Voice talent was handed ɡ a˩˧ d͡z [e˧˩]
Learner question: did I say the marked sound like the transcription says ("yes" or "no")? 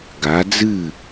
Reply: no